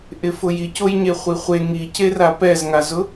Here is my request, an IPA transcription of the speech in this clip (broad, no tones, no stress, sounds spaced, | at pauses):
ʔ ɪ f ʊ j i c o j ɲ e χʷ i χʷ e ŋ i c e r a p ɛ z ŋ a z ʊ